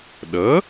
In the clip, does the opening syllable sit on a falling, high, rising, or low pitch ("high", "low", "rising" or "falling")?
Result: rising